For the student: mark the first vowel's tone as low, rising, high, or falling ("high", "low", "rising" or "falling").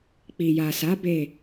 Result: low